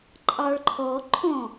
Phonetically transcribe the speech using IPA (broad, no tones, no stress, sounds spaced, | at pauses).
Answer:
ǃʼ ɑ ɭ ǃʰ ɔ ǃʰ ɔ̃